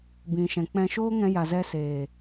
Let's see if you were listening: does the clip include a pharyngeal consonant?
no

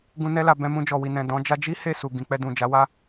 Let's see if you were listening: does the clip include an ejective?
no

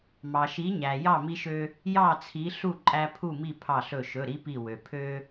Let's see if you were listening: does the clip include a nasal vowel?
no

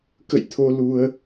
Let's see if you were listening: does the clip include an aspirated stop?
yes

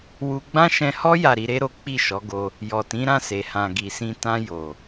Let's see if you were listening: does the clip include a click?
no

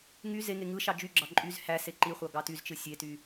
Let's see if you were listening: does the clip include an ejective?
yes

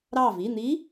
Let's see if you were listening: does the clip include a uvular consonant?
no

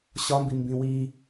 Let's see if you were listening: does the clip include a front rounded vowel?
no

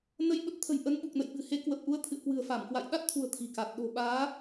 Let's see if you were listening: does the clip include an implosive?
yes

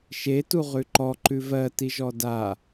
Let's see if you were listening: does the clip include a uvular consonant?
yes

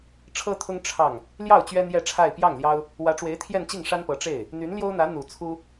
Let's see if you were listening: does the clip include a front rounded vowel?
yes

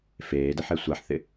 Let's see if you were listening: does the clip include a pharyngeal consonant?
yes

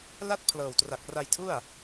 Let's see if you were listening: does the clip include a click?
no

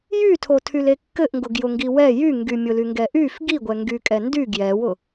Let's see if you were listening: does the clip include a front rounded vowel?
yes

